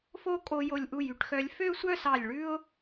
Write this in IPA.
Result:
f o˥˧ kʼ o˧ j o˧˩ lʲ ʔ u˧˩ j y˧˩ ʈ x œ˧ lʲ f ø˥˧ sʷ œ˥˧ s ɑ˧˩ lʲ ɭ ʉ˥ ʊ̯

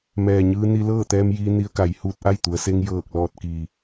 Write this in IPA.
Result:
m ɛː˩ ɲ ɯː˧ n i˧ l ɤː˥˨ t̪ ɛː˧ m j iː˧ n i˧ ə̯ k a˩˧ j h uː˧ t̚ ʔ a˥˨ j t̪ u˩˧ ə̯ s e˧ ŋ j ɤː˧˩ k̚ l ɔː˧˩ t̚ k iː˩

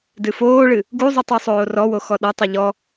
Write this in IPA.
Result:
d ɨ f oː ɭ ɨ | ɡ u zˤ u tˤ o sˤ oː r ɔ w o x ɔ ɗ ɐ tˤ ɘ ʎ ɔ

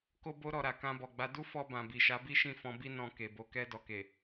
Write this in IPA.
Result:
k o˦ b o˦ ɾ ɔ˧ ɾ a˨ k ã˧ b ɔ˨ ɡ͡b a˨˦ d u˦ f ɔ˧ b ã˨ b i˨ ʃ a˨˦ b i˦ ʃ ĩ˦˨ f ɔ̃˧ b i˦ n ɔ̃˧ k e˨ b o˧ k ɛ˧ d ɔ˨ k e˨

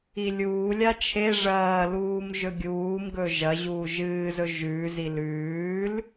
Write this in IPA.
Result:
i lʲ uː lʲ a t͡ʃʰ e ʐ ɐː l uː m ʒ ɵ ɡʲ uː m ɡ ɵ ʒ ɐ ʑ uː ʒ ɨː z ɵ ʒ ʉː z i l ʉː l

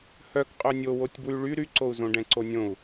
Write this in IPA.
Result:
h œ k qʼ œ nʲ o w o tʲ b w y ɭ y ɾ y ǀ o u̯ z õ ɖ ɛ̃ ǀ o nʲ õ u̯

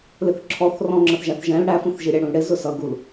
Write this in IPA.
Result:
l ɪ θ ǁʰ ɔ θ r ɔ̃ ŋ͡ǁ ə θ ʒ æ θ ʒ ɛ̃ l ɽ æ f ũ θ ʒ i ɾʲ æ ɽ ũ l ɽ ɪ z ʊ s ʌ ɡ u l

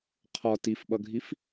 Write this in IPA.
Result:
qʰ ɒ t i f ɓ ʌ ɡʱ i f

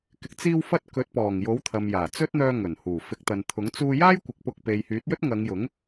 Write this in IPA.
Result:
k ɪ˨ k̚ t͡s iː˧ w f ɐ˧ t̚ k ɵ˨˥ t̚ p ɔː˨˩ ŋ j o˨˥ w t̪ʰ ɐ˨ m j aː˨˩ t͡s ɵ˥ t̚ n̪ œː˧ ŋ ɵ˨˩ n h uː˨˩ f ɪ˨˥ k̚ t̪ ɐ˨ n t̪ʰ ʊ˨˥ ŋ t͡s uː˧ j aː˥ j kʷ ɪ˨˥ k̚ p ʊ˧ k̚ p e˨ j h yː˨˥ t̚ j ɵ˥ t̚ ŋ ɐ˨˧ ŋ j ʊ˨˥ ŋ

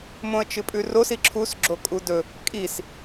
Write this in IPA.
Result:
m õ ə̯ t͡ʃ ɨ pʼ ʉ r o s i ǁʰ u s ɡ͡ǁ o kʼ u d ɵ | kʼ i s

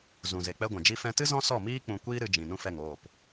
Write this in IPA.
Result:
z ũ˨ z e˨ k͡p ɛ˧ ɡʷ ɛ̃˨ d͡ʒ i˧ f ɛ̃˧ t ɨ˦ z ɔ̃˦ s ɔ˦˨ m iː˦ k͡p ũ˧ kʷ iː˦ ɾ ɨ˧ d͡ʒ ĩ˨ n ũ˦ f ɛ˦˨ ŋ oː˦˨ p

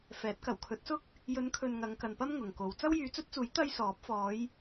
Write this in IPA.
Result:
f ɛː˨˥ t̚ k ɐ˨˩ w kʰ ɵ˨˥ t̚ s ʊ˥ k̚ | j ɵ˨˧ n kʰ ɵ˨ n ŋ ɐ˨˧ ŋ k ɐ˨ n p ɐ˥ m ŋ ʊ˨ ŋ k o˨˧ w t͡s ɐ˥ w j yː˨˧ t͡s ɵ˥ t̚ t͡s uː˨˥ j t̪ ɐ˥ j s ɔː˨˥ p̚ f ɔː˨˧ j

